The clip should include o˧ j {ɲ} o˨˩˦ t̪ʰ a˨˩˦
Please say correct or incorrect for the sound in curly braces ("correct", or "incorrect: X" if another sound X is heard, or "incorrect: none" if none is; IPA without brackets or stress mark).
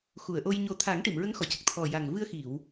correct